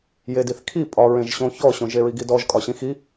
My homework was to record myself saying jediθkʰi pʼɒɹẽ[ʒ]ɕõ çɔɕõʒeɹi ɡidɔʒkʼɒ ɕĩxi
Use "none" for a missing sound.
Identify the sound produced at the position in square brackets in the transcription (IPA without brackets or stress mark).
ʒ